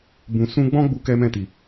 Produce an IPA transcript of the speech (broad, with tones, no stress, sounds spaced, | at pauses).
b ũ˨ s ũ˧ ɡ͡b ɔ̃˦ ɡ͡b u˦ k ɛ˦ m ɛ̃˦˨ t i˨